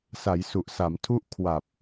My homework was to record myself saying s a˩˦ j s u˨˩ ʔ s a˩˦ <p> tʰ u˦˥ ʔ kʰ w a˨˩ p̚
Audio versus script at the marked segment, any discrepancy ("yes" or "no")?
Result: yes